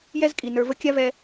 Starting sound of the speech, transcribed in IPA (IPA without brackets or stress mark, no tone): j